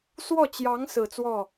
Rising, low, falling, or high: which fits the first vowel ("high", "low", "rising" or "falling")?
falling